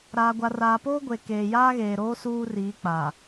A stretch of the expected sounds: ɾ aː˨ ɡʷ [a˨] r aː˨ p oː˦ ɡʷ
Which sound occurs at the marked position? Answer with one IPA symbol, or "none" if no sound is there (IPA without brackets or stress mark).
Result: a˨